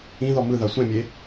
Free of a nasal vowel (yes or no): no